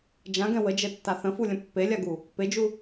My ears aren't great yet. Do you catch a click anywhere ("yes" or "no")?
no